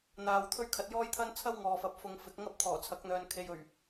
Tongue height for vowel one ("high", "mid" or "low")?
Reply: low